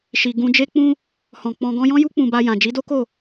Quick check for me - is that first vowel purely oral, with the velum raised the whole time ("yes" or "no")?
yes